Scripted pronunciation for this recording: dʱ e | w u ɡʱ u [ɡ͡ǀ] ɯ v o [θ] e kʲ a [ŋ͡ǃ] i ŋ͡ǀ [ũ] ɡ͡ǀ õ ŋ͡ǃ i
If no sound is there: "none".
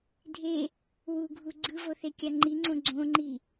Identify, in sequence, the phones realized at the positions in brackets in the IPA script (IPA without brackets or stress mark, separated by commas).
ɡ͡ǀ, θ, ŋ͡ǃ, õ